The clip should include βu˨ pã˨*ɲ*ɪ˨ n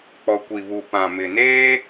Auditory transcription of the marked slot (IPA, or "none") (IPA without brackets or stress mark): m